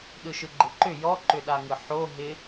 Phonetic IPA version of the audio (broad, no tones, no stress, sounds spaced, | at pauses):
ɗ ɯ ʃ ɯ ɡ͡ǃ ɪ ǃ ʏ j ɔ ǃ ʏ ɗ a ŋ ɯ ħ o ɦ ɪ